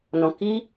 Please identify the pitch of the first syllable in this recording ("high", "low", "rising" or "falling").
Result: low